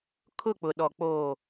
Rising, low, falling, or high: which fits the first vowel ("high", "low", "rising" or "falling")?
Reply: falling